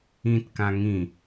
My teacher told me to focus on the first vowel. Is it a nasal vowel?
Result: yes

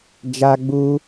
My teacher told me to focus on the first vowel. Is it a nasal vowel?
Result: no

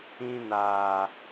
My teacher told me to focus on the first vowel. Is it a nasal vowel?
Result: yes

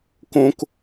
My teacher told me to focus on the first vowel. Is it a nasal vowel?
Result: yes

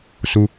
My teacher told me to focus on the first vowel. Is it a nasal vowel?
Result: no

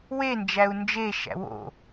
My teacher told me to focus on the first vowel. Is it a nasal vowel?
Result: no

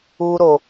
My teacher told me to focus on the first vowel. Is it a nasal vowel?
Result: no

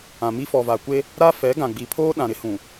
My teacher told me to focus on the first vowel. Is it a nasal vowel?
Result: yes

